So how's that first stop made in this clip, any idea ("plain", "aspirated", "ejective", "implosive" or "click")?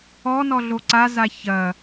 click